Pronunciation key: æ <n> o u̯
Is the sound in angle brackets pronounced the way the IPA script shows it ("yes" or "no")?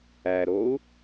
no